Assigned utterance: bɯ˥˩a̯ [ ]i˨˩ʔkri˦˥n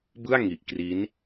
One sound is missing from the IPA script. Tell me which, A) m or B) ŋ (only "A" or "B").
B